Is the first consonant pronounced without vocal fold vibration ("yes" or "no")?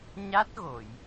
no